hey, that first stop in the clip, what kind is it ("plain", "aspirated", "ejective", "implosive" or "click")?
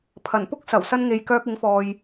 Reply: aspirated